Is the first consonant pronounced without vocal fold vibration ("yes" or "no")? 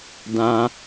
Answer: no